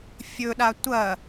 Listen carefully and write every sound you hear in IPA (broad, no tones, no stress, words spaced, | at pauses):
fʲɵɗa tʷɐ